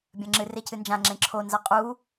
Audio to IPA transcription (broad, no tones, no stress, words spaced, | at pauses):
bʲɐ̃ŋ͡ǁɨ recɨnd͡ʒã ŋ͡ǁẽǁʰo nzaqʼu